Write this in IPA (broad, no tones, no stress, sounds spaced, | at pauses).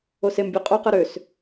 o s e m bʲ æ qʼ o q ɯ ɾ ø s